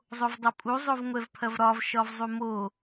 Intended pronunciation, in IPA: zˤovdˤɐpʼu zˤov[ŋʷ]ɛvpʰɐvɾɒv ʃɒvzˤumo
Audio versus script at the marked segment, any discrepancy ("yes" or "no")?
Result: no